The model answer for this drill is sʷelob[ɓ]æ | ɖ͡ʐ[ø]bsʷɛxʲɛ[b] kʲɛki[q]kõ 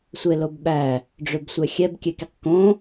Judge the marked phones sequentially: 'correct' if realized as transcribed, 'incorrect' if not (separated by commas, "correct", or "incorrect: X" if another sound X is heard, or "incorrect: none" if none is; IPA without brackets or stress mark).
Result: correct, correct, correct, correct